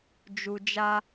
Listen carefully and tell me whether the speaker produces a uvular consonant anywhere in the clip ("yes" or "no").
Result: no